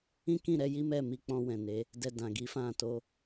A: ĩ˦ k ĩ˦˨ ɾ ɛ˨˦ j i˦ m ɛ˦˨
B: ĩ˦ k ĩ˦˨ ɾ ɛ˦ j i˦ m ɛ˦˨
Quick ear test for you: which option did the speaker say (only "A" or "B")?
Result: A